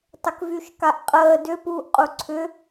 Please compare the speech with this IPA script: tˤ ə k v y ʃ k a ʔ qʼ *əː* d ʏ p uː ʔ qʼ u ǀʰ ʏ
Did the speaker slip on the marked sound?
no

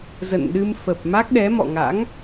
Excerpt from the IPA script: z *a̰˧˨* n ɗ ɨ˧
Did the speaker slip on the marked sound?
yes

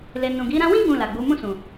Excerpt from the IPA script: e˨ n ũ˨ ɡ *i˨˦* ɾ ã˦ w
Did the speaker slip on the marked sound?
no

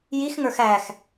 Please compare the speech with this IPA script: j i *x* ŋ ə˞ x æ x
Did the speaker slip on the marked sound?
no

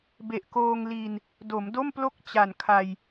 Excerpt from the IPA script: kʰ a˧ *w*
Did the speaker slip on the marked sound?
yes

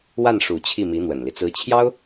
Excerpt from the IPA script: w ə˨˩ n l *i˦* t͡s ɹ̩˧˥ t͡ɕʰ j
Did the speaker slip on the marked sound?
no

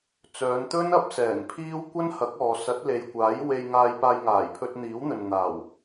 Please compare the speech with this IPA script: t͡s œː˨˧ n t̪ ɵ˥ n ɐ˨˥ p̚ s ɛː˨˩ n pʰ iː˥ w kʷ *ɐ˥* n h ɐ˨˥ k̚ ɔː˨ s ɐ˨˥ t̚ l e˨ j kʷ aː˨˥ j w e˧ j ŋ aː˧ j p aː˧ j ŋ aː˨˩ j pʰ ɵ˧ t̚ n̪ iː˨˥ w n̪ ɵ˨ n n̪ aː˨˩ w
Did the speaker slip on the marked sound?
no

